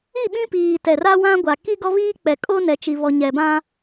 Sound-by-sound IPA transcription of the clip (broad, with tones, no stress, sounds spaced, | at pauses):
i˦˨ ɓ ĩ˦ p iː˨ t ɛ˨ r a˦ w ã˦ ɡʷ a˨ k i˦ ɡ ɔ˦ β iː˦ k͡p ɛ˨ kʼ o˦ n ɛ˨ t͡ʃ i˨ β ɔ˨ ɲ ɛ˨ b ã˦